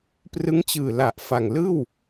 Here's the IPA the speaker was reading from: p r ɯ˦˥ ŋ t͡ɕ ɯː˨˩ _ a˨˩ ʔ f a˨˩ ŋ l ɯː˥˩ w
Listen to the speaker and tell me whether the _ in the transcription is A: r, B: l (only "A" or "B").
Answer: B